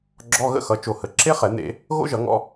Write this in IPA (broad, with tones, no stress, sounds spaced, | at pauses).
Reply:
ɡ͡ǁ ɔ˧˥˧ ɣ ə̰˦˥ x ʌ˩˧˩ t͡ʃ o˧˩ h ə˩˧˩ ǁ e˦˥ χ ɛ˧˩˧ n̪ ḛ˧˩˧ | ɣ o̰˦˥ ʒ ʌ˧˩˧ ŋ ɔ̰˧